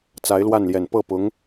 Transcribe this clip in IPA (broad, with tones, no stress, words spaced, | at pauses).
t͡sa˧˥ɪ̯lwa˥˩nljɛ˨˩n pɤ˥˩pʊ˧˥ŋ